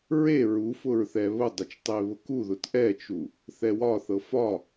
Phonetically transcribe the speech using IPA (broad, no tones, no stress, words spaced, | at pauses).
ɹe ɹufʊɹ θɛβʊdˤɵt͡ʃ tˤeβʊkuðʊt ʔɛt͡ʃu | θɛwɒθɤ fɒ